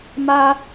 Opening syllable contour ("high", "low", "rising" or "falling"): high